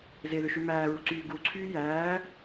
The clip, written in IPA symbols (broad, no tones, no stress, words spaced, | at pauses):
zeðø ʃymæːɹu ǀyːɡuǀʰyː jæː